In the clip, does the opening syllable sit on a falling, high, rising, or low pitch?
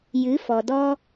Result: rising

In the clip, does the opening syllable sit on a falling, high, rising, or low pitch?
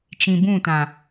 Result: low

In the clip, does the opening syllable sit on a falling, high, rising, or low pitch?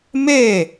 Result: falling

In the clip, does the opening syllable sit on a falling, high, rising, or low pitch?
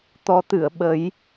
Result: rising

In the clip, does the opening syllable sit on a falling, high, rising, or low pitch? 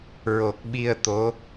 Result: low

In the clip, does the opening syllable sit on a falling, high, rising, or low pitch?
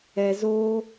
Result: low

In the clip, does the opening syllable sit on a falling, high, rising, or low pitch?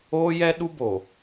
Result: high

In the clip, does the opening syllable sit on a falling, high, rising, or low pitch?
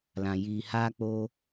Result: low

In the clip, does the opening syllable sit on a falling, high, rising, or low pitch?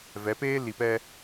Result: rising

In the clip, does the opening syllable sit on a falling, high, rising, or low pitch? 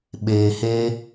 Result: low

